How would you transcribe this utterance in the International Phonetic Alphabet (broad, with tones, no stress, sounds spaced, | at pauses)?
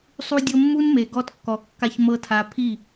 sˤ u˧ dʲ ɤ˧ mː u˦ n m e˨ ɡ ɔ˧ t kː ɔ˨ kː a˧ ç m ɤ˦ tʰ a˧ pʰ i˦˨